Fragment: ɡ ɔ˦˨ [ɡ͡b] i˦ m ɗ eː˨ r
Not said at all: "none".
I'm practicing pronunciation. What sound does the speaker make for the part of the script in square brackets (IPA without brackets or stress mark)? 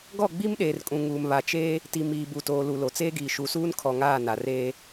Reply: ɡ͡b